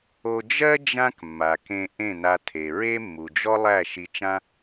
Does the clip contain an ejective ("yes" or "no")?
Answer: no